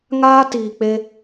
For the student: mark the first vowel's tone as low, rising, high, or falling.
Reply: high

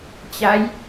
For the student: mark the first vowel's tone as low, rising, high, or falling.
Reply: rising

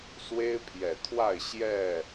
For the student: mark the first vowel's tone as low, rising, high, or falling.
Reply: high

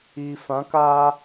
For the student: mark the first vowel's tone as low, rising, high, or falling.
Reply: low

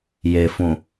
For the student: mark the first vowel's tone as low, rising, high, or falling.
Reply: low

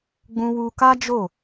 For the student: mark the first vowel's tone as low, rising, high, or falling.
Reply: high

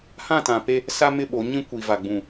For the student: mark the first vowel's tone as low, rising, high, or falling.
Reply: falling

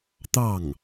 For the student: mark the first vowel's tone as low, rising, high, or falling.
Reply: falling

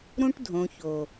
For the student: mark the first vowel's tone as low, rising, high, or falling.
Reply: high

